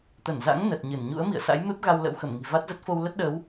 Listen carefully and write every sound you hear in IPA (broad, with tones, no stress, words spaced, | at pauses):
t̪ə˧˩nza̰˧˥ŋ nə˨˩t̚ɲɨ˧˩n ɲṵ˧˥ə̯mḭ˧˨ə̯sa̰˧˥jme˦˥p̚ ɣa˧wlə̰˧˥wxə˧˩m ŋi̤˨˩va˦˥t̚zə˦˥t̚fo˧w lə˦˥t̚ɗə˨˦w